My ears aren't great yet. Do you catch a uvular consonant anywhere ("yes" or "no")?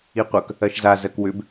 yes